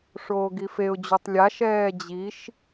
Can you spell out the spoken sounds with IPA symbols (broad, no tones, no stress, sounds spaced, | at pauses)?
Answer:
ʂ oː ɡ i f e ʊ̯ d͡ʑ u tˤ lʲ a ʃ ɛː d͡ʑ i ʃ